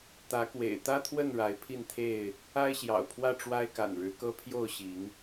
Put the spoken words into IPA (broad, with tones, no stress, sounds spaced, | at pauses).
t̪ ä˨˦ k w ḛ˨˩ ɪ̯ t̪ ä˦ t̪ʰ w ə˥˨ n ɻ a˨˦ ɪ̯ pʰ i˥˨ n t̪ʰ e˥˨ ɪ̯ | a˦ ɪ̯ ɕ j ɑ̰˨˩ ʊ̯ pʰ w ä˥˨ ʈ͡ʂ w a˦ ɪ̯ k a̰˨˩ n ɻ ɻ̩˨˦ k ɤ˦ pʰ j o˥˨ ʊ̯ ɕ i˨˦ ŋ